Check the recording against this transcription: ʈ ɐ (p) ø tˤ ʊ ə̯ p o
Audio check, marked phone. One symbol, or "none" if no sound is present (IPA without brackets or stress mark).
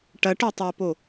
ʈ